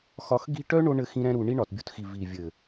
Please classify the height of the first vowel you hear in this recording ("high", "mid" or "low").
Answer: low